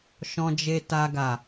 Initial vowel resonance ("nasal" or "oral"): nasal